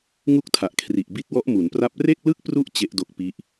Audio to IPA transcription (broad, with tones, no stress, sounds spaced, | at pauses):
ŋ u˥˩ k̚ tʰ a˨˩ ʔ kʰ r i˨˩ ʔ b i˦˥ t̚ w ɔ˦˥ ʔ m u˩˦ n p r a˦˥ p̚ r e˥˩ k̚ l ɯ˥˩ k̚ p r u˦˥ ʔ t͡ɕ e˦˥ ʔ d o˦˥ k̚ p i˦˥ ʔ